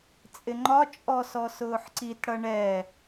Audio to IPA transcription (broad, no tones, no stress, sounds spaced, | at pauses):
t͡sʼ ɪ ŋ͡ǃ ɒ t͡ʃʼ ɔ s ɔ s ʊː ħ ǀ i t ɽ ʌ ɳ ɛ